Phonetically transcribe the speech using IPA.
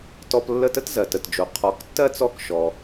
tɔ˧plːə˥˩ tə˥tzɜ˩tə˩td͡ʒo˩ qʰɔ˩˥ktːɜ˥ t͡sɔ˥˩kʃɔ˩

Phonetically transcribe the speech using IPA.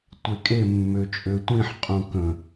tʷekʼe mːøt͡ʃʼøtʷĩħ qʼũkə̃

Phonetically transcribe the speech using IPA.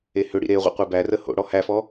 ehʏɽḭ ɾeʁʷə̰ qʷebærə ho̰ ɽɔhæfɔ

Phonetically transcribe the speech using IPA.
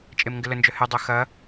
t͡ʃʼemŋɡɪlənd͡ʒœ hɪdˤø xɐ

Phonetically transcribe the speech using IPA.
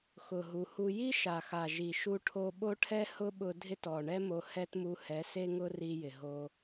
xʊ˨ ɦu˨hu˧ ji˦ʃa˨xa˨ ʒi˨ʃu˧ʈʰo˧ ɓo˦ʈʰɛ˦hʊ˦ɓʊ˧ dʱɪ˦tɔ˨ ɳɛ˦mo˧hɛ˦tmu˧ hɛ˨˦se˧ŋʊ˧ ri˧jɪ˨ɦo˧

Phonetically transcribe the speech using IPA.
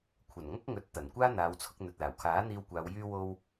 kʷʰɐ˨˩nŋɐ˥k̚ŋɵ˨˥t̚ t̪ɐ˨˩nkʷaː˥ n̪aː˨˧wt͡sʰʊ˧k̚ n̪ɵ˨t̚laː˨˩wkʰaː˨˥ n̪iː˧wkʷaː˨˧w jyː˧wo˧w

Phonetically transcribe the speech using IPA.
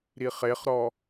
ɾiχeχɾɔ

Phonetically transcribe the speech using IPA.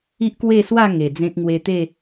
i˦ʔkwe˥˧ swa˥˧ ŋe˨˩d͡zẽ˦k̚ ŋwe˧t̪e˥˧

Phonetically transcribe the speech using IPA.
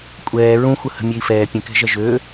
kʷʼɛː ɹũxʷə hə̤mʲøi̯fɛː pʲə̃kɛ̤ʒɐ ʒø

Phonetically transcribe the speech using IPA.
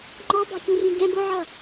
ŋ͡ǃɔbɑ̤kʲũrĩ ɟɛ̃ bʊʕʌ

